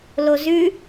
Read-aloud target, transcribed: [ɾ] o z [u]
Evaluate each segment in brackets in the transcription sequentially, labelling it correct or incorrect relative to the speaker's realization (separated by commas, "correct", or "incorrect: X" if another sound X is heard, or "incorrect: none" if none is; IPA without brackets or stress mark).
incorrect: l, incorrect: ʉ